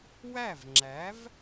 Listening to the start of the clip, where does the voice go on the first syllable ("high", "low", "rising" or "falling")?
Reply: falling